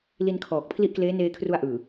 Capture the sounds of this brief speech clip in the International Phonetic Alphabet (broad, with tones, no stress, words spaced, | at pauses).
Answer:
li˧nkʰɔː˨˩k̚pʰli˦˥ʔkleː˦˥ neː˧kʰru˧a̯ʔɯː˨˩